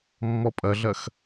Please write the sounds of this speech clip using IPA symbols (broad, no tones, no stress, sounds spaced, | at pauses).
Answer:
mː ɔ pʼ ɐ ɮ ɐ x